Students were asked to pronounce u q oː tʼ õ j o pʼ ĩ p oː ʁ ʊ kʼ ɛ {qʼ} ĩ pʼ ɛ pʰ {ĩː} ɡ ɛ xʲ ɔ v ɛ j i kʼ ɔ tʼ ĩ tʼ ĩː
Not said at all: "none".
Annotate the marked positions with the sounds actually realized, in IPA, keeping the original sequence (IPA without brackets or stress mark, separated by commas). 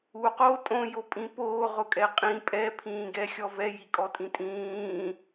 qʼ, ĩː